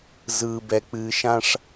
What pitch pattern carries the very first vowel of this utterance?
low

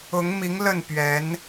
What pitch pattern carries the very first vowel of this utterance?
rising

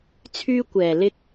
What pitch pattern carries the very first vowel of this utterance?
high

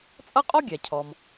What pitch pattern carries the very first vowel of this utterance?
high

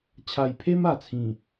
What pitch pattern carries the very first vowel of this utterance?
low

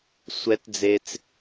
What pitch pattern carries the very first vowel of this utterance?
rising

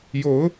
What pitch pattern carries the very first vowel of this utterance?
rising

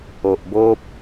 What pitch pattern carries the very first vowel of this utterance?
low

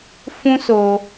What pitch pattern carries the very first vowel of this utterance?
high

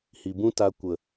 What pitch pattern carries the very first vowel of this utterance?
low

